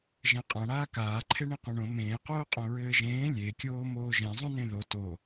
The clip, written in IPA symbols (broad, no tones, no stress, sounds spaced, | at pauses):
ʒ ɛ̃ qʼ ã ɽ aː k aː ǃʰ e ɳ ẽ q õ ɳ õ m ẽː q oː qʼ õ ɹ ɘː ʒ ẽː lʲ e kʲ oː m oː ʒ ɛ̃ zˤ õ n ẽ ð o t o